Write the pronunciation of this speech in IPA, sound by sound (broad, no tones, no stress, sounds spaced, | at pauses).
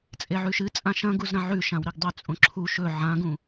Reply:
t͡sʼ e ʕ ʉ ʃ ɨ t͡sʼ ã ʃ ɐ̃ ɡ u z ɾ ɐ̃ ʕ ʉ ʃ ã w ɾ i ɡ dˤ ʉ t͡sʼ õ ǁʰ u ʃ ɵ ʕ ã ɡ ũ